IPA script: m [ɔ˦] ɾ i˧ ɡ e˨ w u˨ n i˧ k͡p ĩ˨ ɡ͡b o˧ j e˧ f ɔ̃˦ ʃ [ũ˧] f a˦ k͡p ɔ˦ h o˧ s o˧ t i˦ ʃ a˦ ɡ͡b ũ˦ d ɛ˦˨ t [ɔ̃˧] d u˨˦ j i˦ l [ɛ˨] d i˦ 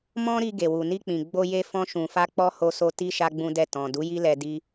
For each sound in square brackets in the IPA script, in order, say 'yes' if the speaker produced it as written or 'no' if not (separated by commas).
no, yes, no, no